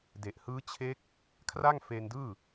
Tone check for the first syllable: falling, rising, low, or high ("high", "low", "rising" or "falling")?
low